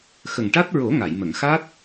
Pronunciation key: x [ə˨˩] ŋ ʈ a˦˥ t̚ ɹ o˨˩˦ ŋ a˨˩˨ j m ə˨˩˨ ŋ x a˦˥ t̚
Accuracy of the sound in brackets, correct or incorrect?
correct